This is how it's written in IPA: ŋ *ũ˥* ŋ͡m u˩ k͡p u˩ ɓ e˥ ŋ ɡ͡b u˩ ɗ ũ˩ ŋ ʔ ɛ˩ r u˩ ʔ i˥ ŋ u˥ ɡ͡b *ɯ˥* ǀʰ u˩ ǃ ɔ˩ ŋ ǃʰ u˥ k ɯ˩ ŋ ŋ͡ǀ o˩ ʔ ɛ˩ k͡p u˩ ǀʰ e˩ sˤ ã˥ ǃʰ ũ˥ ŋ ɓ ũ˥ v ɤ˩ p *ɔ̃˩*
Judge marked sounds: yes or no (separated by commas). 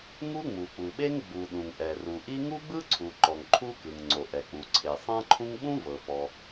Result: no, yes, no